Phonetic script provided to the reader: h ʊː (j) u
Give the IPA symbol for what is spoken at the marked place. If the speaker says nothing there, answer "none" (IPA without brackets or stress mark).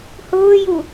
j